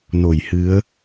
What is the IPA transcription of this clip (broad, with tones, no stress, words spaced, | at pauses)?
no˧˩jhɨ˨˦ə̯